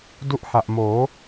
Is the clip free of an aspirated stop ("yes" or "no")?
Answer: yes